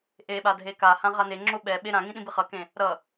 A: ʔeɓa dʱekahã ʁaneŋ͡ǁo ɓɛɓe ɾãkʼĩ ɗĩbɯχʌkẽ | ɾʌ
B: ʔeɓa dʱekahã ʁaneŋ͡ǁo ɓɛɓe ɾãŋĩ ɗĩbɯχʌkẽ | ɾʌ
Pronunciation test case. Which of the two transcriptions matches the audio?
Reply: B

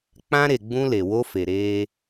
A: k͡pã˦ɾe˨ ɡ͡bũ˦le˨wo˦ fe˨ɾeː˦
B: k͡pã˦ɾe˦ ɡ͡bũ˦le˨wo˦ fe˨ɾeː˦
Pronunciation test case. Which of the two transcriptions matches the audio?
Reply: A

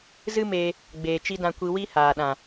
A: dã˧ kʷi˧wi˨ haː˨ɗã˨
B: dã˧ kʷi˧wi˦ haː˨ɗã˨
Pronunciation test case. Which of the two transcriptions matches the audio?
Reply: B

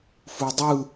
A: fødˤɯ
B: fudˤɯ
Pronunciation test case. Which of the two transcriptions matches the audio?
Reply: B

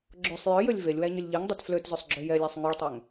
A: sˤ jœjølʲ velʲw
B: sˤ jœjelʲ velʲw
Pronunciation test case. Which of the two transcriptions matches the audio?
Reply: A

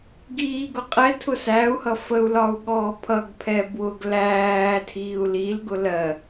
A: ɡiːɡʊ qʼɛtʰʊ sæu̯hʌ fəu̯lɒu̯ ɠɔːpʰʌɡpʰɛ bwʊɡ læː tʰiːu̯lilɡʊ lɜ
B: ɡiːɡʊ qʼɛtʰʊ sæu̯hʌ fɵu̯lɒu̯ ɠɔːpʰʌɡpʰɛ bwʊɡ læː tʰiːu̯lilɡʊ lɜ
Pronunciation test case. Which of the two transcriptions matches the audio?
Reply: A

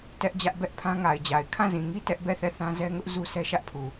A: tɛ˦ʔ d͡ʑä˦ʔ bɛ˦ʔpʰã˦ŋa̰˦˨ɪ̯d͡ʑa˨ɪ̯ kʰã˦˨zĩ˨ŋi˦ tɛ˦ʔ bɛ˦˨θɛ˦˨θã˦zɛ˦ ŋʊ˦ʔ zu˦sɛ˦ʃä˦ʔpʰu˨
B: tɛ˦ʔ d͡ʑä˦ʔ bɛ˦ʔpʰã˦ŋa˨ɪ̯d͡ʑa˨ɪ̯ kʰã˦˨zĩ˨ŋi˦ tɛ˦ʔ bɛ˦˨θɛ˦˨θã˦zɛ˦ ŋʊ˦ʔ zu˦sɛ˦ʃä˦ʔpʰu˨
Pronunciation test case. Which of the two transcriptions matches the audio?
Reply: B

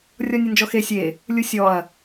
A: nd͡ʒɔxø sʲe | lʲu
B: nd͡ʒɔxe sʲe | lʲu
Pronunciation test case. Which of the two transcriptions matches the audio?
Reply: B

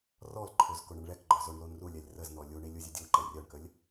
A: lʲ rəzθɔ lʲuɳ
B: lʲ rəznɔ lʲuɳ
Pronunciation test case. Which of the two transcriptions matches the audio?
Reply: B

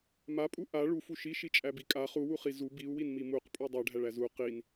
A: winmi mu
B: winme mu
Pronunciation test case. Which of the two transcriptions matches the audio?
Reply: A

